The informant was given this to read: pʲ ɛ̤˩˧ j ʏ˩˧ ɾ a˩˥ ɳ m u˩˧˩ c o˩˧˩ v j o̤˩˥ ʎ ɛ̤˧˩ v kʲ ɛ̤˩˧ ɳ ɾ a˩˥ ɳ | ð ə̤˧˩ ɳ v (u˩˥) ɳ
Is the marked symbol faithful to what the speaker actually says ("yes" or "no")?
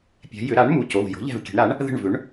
no